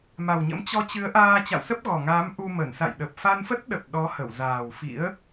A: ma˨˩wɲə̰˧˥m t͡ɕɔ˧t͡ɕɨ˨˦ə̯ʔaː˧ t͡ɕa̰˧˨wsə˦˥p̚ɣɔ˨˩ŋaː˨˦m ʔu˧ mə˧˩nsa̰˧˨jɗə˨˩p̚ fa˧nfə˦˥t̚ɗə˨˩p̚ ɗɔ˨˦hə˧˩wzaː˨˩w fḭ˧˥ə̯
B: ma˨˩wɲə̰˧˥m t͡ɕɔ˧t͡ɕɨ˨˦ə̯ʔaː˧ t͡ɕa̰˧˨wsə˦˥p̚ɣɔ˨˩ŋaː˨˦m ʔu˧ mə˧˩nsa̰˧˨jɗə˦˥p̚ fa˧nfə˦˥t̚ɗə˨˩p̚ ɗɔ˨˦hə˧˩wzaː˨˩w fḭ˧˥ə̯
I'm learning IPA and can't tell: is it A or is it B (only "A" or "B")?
A